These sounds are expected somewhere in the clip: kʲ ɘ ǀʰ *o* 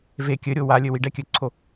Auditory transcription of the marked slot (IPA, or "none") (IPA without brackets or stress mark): o